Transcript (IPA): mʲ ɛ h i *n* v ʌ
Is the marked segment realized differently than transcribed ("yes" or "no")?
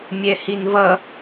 no